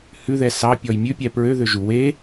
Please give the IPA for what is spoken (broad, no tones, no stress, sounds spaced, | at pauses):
h ʉ ð ɛ s ɑ pʲ ɔ j mʲ ʉ pʲ ɛ p ɹ ø ð ø ʒ u w e